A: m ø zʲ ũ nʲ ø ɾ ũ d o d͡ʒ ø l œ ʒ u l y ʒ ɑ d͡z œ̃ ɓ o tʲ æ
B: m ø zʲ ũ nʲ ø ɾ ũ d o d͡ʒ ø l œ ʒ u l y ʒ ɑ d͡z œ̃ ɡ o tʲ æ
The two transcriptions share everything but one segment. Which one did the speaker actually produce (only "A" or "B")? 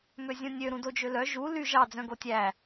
B